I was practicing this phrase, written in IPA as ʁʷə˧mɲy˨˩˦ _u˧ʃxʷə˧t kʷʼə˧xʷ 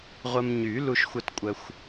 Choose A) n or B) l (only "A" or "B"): B